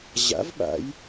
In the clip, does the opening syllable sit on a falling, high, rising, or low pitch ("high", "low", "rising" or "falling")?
rising